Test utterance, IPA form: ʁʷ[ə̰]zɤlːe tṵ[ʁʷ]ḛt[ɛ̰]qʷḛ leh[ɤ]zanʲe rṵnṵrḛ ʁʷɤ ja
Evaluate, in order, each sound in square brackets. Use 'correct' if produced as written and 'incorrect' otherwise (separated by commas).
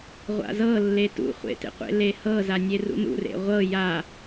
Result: incorrect, incorrect, incorrect, correct